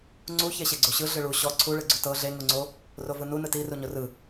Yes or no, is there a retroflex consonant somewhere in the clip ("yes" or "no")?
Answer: yes